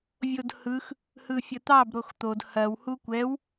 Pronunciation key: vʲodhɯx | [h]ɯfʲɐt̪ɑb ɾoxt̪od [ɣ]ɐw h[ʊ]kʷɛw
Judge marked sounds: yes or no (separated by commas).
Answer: yes, no, no